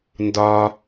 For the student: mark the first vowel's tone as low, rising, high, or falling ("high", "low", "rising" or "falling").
low